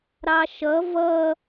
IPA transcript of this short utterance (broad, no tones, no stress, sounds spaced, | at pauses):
ɾ ɑ ʃ ʌ v ʌ